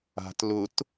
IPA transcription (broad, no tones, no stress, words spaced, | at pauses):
a̤t lʊt